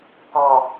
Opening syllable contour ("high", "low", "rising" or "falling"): low